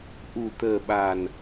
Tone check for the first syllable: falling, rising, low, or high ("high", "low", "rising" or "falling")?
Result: low